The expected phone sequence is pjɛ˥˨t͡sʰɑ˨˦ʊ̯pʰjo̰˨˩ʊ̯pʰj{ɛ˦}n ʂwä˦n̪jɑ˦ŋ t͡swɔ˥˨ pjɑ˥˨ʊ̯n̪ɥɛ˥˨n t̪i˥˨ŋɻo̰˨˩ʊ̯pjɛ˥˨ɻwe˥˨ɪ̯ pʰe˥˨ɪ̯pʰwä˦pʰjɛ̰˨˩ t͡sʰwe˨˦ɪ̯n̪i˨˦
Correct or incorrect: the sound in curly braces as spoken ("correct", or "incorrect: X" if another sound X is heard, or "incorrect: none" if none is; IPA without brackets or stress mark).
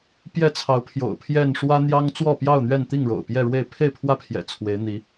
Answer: incorrect: ɛ˥˨